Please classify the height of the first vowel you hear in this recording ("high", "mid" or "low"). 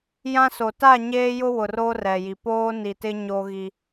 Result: low